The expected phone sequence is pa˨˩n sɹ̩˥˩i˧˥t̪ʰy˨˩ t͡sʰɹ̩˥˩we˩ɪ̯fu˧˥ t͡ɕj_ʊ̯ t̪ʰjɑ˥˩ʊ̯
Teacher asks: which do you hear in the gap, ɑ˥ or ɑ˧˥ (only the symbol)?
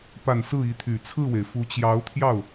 ɑ˧˥